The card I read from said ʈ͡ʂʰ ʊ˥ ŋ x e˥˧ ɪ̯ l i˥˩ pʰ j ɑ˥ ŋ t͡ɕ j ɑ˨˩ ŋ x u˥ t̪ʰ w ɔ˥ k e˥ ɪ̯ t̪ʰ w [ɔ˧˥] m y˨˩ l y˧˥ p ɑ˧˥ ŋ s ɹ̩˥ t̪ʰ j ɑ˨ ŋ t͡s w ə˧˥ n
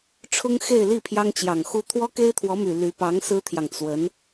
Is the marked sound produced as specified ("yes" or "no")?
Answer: yes